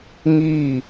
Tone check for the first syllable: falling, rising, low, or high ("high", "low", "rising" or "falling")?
falling